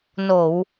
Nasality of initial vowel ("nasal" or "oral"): oral